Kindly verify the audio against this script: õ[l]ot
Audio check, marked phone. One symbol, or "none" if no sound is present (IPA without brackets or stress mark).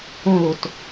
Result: l